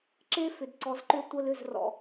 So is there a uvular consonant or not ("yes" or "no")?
no